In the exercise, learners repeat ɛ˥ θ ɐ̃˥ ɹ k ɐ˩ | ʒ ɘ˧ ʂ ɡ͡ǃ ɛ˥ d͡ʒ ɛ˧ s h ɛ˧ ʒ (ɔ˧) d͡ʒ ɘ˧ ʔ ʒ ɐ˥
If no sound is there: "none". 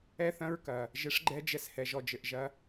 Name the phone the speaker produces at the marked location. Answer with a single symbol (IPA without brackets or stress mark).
ɔ˧